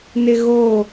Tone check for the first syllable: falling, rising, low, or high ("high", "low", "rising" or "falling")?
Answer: high